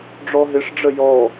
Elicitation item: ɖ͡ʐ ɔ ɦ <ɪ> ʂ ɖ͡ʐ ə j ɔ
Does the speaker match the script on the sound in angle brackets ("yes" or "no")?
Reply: yes